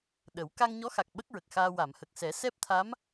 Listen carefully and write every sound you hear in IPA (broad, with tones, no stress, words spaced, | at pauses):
ɗə˨˩˦w ka˧ŋɲɔ˧˥xa˨˩k̚ ɓə˦˥k̚ɹə˨˩k̚xaː˧ wa˨˩˨mhə˨˩k̚sɛ˨˩˦ sɛ˦˥p̚t̪ʰa˧˥m